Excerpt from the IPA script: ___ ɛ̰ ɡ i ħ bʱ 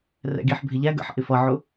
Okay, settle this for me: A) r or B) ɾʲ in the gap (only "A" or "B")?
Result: A